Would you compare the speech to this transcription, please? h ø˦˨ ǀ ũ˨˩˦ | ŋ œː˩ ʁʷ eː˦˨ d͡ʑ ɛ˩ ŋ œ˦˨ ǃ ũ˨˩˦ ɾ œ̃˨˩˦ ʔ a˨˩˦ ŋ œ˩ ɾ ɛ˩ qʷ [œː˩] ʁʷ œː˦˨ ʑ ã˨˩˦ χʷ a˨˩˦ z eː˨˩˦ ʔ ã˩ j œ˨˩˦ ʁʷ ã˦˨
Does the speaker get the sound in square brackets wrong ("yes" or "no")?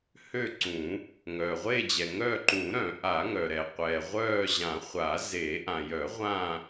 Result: yes